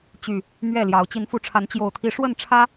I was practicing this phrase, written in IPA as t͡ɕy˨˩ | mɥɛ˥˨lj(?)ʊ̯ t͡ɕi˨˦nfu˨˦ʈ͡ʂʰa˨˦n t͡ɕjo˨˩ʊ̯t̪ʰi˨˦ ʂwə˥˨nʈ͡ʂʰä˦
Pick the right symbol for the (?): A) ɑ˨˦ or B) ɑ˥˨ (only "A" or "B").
A